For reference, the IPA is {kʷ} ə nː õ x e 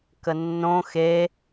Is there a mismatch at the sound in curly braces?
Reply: yes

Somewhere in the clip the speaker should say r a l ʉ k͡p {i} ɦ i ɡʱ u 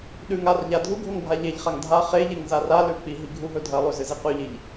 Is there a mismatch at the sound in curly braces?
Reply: no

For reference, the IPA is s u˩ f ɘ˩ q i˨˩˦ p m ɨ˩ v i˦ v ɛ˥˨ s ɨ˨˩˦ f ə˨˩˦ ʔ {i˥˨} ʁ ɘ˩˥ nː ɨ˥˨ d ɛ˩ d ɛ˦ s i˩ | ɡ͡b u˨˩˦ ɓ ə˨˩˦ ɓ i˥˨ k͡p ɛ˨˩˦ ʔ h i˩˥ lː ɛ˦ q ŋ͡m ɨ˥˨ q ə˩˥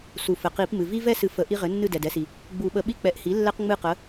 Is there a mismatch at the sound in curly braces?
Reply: yes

